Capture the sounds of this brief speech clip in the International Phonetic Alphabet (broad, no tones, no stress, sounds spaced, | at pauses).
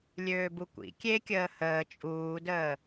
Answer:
lʲ øː b u kʷ ḭ kʲ e kʲ əː h əː t͡ʃʼ uː d əː